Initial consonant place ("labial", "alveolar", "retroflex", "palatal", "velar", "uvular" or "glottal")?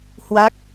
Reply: glottal